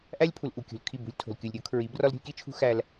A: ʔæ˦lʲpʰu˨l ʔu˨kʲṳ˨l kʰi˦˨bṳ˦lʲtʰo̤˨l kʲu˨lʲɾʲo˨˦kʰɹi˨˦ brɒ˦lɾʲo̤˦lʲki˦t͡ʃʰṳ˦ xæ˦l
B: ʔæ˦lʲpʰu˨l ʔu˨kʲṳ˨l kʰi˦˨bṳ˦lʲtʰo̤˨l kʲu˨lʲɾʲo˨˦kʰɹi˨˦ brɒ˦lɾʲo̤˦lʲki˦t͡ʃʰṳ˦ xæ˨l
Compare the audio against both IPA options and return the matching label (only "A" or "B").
A